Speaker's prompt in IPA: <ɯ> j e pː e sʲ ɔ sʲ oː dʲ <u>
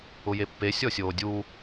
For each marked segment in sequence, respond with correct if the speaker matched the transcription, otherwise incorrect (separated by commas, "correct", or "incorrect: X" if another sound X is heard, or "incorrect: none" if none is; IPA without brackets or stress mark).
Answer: incorrect: ʊ, correct